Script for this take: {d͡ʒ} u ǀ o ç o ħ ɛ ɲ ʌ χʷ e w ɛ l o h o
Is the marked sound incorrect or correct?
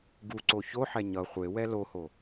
incorrect